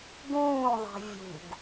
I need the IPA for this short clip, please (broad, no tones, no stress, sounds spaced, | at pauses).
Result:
ɡ ũː ðˤ i̤ vʲ ṳ ɡ